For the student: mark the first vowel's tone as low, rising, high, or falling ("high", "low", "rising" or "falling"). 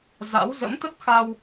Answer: rising